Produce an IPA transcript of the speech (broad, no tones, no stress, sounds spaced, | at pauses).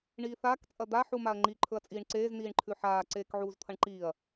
ɳ iː θ aː k t͡sʼ ɐ d̪ a ħ u m a ɐ̯ ŋ͡ǃ i ǃʰ ɵ ɐ̯ t͡sʼ iː ɳ ǀ eː z n iː ɳ ǃʰ ʉ ħ aː ǀ eː k ʕ uː z t̪ʰ ɐ ɳ ǃ iː ɐ̯